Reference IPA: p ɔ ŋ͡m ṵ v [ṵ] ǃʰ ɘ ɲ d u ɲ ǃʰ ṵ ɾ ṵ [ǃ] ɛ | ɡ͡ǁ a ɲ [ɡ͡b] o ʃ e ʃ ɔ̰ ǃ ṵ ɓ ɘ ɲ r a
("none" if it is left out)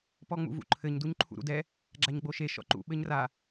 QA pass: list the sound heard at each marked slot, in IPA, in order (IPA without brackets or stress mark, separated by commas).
ṵ, d, ɡ͡b